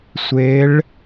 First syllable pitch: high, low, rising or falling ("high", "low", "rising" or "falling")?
rising